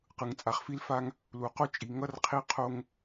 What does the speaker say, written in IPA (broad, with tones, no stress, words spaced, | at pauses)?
qɯ˨ŋt͡sʼa˨χfi˦lfa˦ŋ | lu˨qo˦t͡ʃʼi˨ŋʌ˦r qʰi˦qʰo˦ŋ